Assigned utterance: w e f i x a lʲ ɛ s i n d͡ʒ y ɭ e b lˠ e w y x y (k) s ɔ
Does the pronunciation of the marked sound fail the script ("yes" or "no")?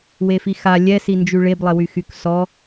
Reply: no